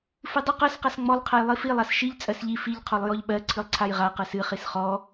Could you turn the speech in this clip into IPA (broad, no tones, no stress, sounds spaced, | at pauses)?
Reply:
f ɨ dˤ ɨ q ɜ s q a s ŋ͡m ɔ lˠ qʰ ɜ j lˠ i f i lˠ a s ʃ i ʎ t͡sʼ ɜ s ʎ i f i ʎ qʰ ɔ lˠ j ɔ ʎ ɓ ɜ ǀʰ ɨ lˠ ǀʰ a j ʁ a q ɜ s ɨ χ i s χ ɔ